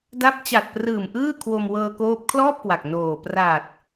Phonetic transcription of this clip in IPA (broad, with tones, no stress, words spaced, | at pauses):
da˦˥p̚ t͡ɕa˨˩t̚prɯː˨˩m ʔɯː˥˩kʰwo˧m wɤː˧koː˦˥p̚ kʰlɔː˥˩p̚kwa˨˩k̚ noː˨˩ pra˨˩t̚